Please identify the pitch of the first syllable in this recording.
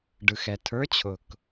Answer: low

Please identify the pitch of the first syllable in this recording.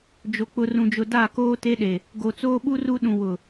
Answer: low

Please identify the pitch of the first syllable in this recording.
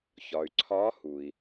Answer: low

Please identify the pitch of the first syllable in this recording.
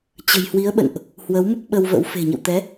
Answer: low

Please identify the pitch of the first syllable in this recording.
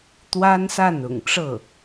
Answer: high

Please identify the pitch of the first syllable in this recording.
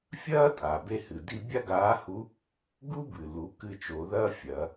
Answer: high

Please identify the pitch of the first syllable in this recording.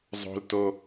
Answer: low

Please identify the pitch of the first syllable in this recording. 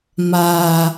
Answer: low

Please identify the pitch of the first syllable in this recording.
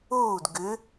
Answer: falling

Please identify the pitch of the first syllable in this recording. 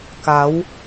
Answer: rising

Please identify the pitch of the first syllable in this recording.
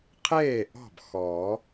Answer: falling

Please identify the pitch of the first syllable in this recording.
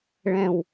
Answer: low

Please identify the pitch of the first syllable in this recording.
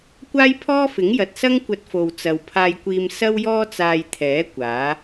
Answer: high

